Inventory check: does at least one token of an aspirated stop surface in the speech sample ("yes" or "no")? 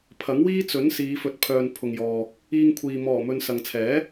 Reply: yes